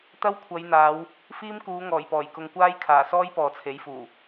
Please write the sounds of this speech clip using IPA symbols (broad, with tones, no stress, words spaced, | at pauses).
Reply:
t̪ɐ˥w kʷʰɐ˨˧jn̪aː˨˧w | fiː˥mkuː˨˧ŋɔː˨˩jpɔː˨˩j kʊ˨ŋkʷaː˥j kʰaː˨˩sɔː˥j pɔː˨t͡sʰe˨˥jfuː˨˩